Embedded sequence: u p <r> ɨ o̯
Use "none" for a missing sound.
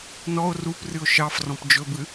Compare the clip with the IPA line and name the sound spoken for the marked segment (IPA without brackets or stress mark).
r